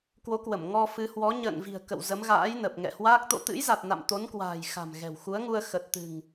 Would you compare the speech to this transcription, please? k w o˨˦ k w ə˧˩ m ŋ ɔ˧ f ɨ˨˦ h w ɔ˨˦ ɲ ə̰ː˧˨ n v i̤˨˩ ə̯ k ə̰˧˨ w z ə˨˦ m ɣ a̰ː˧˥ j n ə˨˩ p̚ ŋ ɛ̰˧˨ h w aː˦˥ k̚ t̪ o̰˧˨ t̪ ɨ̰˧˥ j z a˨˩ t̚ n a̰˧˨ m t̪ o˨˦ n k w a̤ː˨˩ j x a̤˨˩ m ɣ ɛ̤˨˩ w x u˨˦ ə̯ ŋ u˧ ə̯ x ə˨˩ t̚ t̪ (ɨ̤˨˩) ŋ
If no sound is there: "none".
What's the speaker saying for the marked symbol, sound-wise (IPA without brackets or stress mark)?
ɨ̤˨˩